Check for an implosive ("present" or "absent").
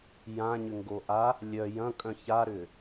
absent